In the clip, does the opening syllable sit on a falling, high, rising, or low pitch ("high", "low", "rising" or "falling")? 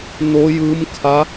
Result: rising